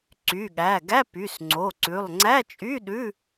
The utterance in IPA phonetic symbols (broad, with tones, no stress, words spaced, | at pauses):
ǀy˩˧˩ɠæ˩˧˩ɡæ˧˥˧ py˩˧˩sŋ͡ǀo˩˧˩ǀʉ˩˧˩lˠ ŋ͡ǀæ˧˥˧t͡ʃʼy˧˥˧ɗʉ˧˥˧